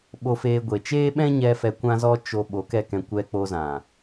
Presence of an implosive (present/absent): present